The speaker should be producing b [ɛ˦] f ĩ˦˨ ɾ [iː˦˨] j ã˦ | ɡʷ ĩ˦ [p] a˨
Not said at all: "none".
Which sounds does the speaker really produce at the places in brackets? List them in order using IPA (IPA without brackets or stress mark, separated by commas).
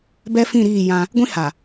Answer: ɛ˦, iː˦˨, h